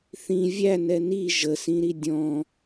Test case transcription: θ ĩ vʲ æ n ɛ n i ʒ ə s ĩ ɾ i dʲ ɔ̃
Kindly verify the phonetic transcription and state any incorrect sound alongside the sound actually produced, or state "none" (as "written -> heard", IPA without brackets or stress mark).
none